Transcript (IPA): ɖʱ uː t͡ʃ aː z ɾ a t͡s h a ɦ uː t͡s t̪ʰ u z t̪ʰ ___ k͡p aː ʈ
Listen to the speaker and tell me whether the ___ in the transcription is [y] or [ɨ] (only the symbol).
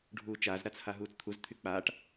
y